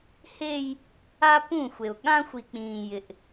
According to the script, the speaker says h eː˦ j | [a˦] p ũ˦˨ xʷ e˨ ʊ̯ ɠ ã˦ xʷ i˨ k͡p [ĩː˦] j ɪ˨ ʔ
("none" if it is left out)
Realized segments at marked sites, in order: a˦, ĩː˨

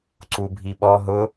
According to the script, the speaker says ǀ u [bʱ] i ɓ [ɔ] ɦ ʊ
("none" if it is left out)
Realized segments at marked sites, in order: bʱ, ɔ

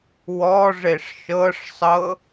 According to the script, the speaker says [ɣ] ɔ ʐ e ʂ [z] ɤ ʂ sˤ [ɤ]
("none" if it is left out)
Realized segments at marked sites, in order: w, ʃ, ɤ

